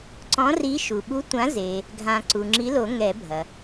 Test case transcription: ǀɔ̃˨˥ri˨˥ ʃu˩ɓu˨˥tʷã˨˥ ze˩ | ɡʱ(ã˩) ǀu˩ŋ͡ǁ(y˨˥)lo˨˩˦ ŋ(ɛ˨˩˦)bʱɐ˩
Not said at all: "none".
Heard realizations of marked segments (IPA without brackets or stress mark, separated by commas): ã˨˩˦, i˨˥, ɛ˨˩˦